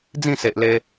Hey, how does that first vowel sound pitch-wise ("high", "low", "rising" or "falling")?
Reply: falling